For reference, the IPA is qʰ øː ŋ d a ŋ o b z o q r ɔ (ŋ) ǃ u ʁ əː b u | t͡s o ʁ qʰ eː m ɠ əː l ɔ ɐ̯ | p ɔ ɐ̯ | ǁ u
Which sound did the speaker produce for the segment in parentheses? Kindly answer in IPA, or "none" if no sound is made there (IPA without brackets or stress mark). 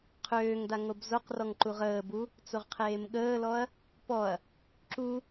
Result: ŋ